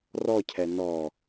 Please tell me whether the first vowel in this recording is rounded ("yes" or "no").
yes